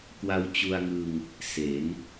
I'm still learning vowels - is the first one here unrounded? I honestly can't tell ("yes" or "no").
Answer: yes